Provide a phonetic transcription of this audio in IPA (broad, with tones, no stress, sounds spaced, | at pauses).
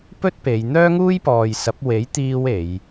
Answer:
p ɵ˥ t̚ p e˨˧ j n̪ œː˥ ŋ uː˥ j p ɔː˨ j s ɐ˨˥ p̚ w e˨˥ j t̪ iː˧ w e˨˧ j